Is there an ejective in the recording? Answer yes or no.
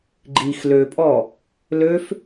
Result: yes